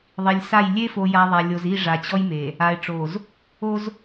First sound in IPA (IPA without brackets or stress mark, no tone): ðˤ